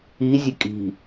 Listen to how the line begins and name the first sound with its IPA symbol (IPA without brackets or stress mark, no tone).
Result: i